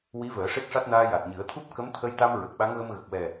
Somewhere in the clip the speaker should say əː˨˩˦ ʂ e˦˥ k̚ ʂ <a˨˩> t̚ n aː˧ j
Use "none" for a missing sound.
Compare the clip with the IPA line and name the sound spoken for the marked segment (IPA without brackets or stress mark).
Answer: a˦˥